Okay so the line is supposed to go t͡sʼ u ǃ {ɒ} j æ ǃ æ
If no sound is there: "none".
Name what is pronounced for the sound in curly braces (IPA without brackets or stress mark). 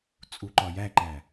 ɒ